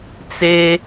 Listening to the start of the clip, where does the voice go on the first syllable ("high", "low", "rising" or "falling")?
high